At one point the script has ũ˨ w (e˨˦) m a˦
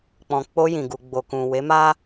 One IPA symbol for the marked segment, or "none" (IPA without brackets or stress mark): e˨˦